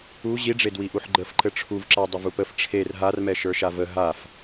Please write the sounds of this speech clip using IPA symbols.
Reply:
u ʑiɖ͡ʐedwiʔuħ ɡ͡ǃəf ǃɘʈ͡ʂʰuvǁa dˤəvupəf ʈ͡ʂʰer ɦarmɛ ʃə˞ʃavə ɦaf

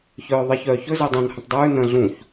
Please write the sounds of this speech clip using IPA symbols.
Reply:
çœːðˤɜçœːçɵ zɜdˤœ̃n hə̃tˤdˤʉː nə̃ ɮũç

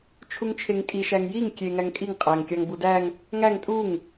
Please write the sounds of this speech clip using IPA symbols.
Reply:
t͡ʃʰuŋt͡ʃʰeŋkʼi ʃæŋjiŋ kʲe ŋæŋkʼiŋ qʼæŋkʲɑŋ budæŋ | ŋæŋ tʼuŋ

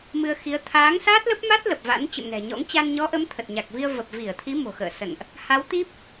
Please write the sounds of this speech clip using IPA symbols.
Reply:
mɨ˧ə̯xi˨˦ə̯ t̪ʰaː˨˦ŋsaː˦˥t̚lə˦˥p̚ma˦˥t̚ lə˨˩p̚va̰˧˥n t͡ɕə̰˧˨mnɛ̤˨˩ɲɔ̰˧˥ŋ t͡ɕa˧nɲɔ˨˦ʔə˨˦m t̪ʰə˨˩t̚ɲa˨˩k̚vi˧ə̯ və˨˩p̚vi˧˩ə̯t̪ʰi˨˦ mo̤˨˩xə̰ː˧˨sə̰˧˨nʔ | ha˨˦wt̪i˦˥p̚

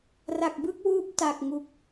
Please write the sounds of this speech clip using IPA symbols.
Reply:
ra˨˩k̚bɯ˥˩k̚wuː˦˥p̚ ta˨˩k̚ŋu˨˩k̚

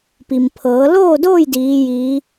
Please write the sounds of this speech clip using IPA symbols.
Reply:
pi˩mpʰɤː˩˧loː˥˨doː˥˨j diː˧˥jiː˧˥

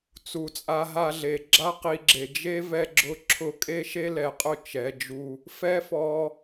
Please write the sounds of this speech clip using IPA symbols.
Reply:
t͡su˨t͡sʼa˧ ɦa˧ɮe˨ ɡ͡ǁa˦qi˧ɡ͡ǁe˨ d͡ʒe˦ vɛ˧ɡ͡ǁʊ˧ ǁʰʊ˧kʼe˦ʃe˦ lɛ˨qʼʊ˦˨ t͡ʃɛ˨˦d͡ʒu˧ | fɛ˦fɔ˧

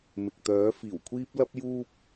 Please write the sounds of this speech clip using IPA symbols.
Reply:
mɪ˨k̚t̪œː˨˥fiː˨˩wkʷʰiː˥p̚ lɐ˥p̚juː˥p̚

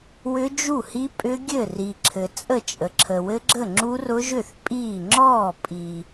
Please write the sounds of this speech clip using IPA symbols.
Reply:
wʏ˦˥d͡ʒu˥˩hi˦˥ pʼʏ˦˥ɡʲɘ˥˩ ri˨ǁʰɘ˨ t͡sʼə˥˩t͡ʃʼə˨ ǁʰə˨wɘ˦˥ɡ͡ǁə˥˩ ŋ͡ǁu˦˥rʊ˦˥ʒʏ˥˩θ pʼiː˥˩ ŋ͡ǁɔː˥˩pʼi˨

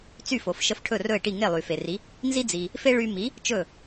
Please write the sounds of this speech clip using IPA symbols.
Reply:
t͡sy˥˩fo˩fʃə˧f ʈʰɵ˥˩rɵ˥˩e̯ʈi˥˩ ŋe˥˩lˠy˩fe˩ri˩˥ | nzi˥d͡zi˩ | fe˥ ɭy˧mi˩˥ | t͡ʃɵ˥˩

